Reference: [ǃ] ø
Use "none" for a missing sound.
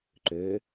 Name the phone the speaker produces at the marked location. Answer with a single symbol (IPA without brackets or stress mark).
ǃ